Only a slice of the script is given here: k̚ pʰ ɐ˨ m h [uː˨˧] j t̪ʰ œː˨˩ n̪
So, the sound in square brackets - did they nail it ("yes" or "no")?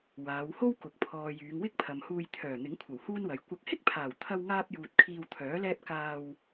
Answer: no